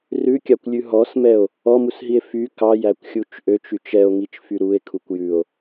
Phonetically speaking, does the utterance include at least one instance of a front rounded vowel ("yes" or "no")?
yes